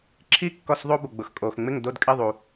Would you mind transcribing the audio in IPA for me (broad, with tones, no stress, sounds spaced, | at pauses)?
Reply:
ǁʰ i˥˨ kː ɔ˥˨ s ðˤ o˥ b ʊ˨ ɡ͡b ʊ˨ x kʼ o˨ x ŋ͡m ɪ˥˨ ŋ d o˥˨ d kʼ ɪ˥˨ ðˤ u˨